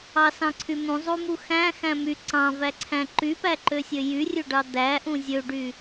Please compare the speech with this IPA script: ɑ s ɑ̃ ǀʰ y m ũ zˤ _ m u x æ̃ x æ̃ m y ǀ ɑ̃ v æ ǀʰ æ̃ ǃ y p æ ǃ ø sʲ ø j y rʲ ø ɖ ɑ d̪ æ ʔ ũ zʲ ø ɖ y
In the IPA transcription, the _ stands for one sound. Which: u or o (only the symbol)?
u